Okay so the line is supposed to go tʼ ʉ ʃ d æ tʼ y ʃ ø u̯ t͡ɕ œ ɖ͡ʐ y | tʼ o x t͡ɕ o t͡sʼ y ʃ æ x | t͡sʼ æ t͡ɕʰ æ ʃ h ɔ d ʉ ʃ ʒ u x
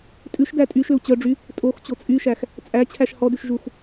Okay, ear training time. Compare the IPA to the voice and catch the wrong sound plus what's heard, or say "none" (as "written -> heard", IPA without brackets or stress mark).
none